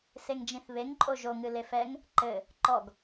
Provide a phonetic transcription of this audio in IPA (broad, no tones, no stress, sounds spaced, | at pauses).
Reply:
s e ŋ d͡ʒ ĩ θ β e ŋ ǃʼ o ʒ o ŋ ɨ l e f ɛ ŋ | ǃ ɘ | ǃ ɔ ɡ